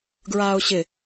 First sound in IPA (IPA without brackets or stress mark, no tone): ɡ